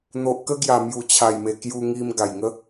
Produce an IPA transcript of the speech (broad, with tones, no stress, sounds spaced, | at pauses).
n̪ o˨ ʔ k ə˦ ɡ j a˨˩ m j u˨˩ t͡ɕʰ a˨˩ j m e˨˩ k j u˧ ŋ i˧ m ɡ a˨˩ j ŋ ə˦